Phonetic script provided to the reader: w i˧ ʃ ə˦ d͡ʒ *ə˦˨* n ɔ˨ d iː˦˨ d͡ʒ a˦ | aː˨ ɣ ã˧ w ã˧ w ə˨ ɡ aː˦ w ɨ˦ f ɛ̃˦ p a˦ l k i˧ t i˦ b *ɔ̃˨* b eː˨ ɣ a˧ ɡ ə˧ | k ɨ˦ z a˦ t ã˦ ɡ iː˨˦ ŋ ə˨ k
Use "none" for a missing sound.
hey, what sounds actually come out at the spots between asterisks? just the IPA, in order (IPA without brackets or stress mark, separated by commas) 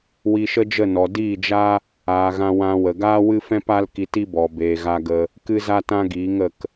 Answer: ə˦˨, ɔ˨